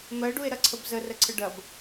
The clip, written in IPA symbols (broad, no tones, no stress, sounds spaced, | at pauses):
m ɜ ɖ u e̯ ɾ ɐ ǀʰ ə b z ə r ə ǀʰ ə ɖ ɐ b